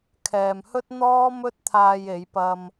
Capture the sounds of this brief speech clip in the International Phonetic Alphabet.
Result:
kʰ ɛː˨ m h ɵ˥ t̚ n̪ ɔː˥ m ɵ˥ t̚ t̪ʰ aː˧ j e˨˧ j p ɐ˧ m

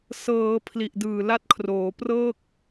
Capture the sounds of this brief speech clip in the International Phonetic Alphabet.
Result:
s ɤː˩˦ pʰ l i˨˩ ʔ d ɯː˨˩ l a˦˥ t̚ kʰ r oː˩˦ p r ɤː˥˩ k̚

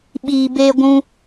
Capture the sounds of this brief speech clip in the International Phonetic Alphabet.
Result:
ɓ iː˧ b eː˧ ɡʷ ũ˧

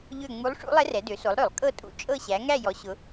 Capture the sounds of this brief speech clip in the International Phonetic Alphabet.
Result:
ʎ ø˦˨ ŋ͡m u˧˥ lˠ ʂ ṵ˧˥ lˠ ɛ˧˥ r ɛ˩˧ d ø˩˧ s o˩˧ lˠ ɾ ø˧˩˧ lˠ kʼ ɤ˦˨ tʼ ṵ˧˥ t͡ʃʼ ɤ˦˨ ɕ æ˩˧ ŋ æ˦˨ j ɔ˩˧ ɕ ʊ˩˧

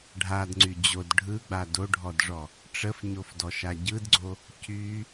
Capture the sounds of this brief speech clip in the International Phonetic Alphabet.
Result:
ɖʱ a d ŋ͡ǀ y d͡ʑ o d ɖʱ ɯ ɡ͡b a d o ɖʱ ɔ d ʐ ɔ | ʈ͡ʂ ə f ɲ o f d ɔ ʃ a ɟ ɯ d ɡ͡ǀ o | c y

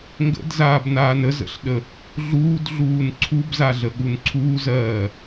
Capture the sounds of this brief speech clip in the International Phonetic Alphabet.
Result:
ŋ ɡ ə̰ d z aː b n aː n ə z ə̰ ɬ ɗ ə | ɮ uː d ɮ uː n ǀʰ u b z a ɮ ə ɠ u n ǀʰ uː z ɜː

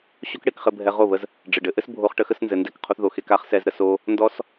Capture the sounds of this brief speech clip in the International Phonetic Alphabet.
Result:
ɕ o˦ k ɽ e˧ k χ ɘ˧ bʱ ɛ˧ ʁ o˦˨ β ə˧ z | ɖ͡ʐ ɘ˨ ɖ ɘ˧ ʔ ɘ˦ s bʱ o˧ χ ʈ ə˧ x ə˧ s n z ɘ˧ n d ɛ˦˨ k qʰ o˦ θ ð o˧ x e˧ k a˦ χ s ɛ˧ z ɾ ə˧ s o˧ | n d ɔ˦ s

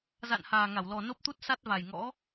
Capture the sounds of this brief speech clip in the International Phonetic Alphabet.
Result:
z a̰˧˨ n h aː˨˩ ŋ a˧˩ w l ɔ˨˩ n o˦˥ p̚ t̪ u˦˥ t̚ s a˦˥ t̚ v a˨˩ j ŋ ɔ̰˧˥

